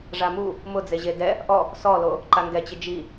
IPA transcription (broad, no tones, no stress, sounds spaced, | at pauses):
ʐ a m u | m ʊ d͡z e ʑ e d ɛ | ʔ ɔ | s ɔ l o | ǃ a ŋ ɡ ɛ t͡ɕ ɪ d͡ʒ i